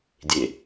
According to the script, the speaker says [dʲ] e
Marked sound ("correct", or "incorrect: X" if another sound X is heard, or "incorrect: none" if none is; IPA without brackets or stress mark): correct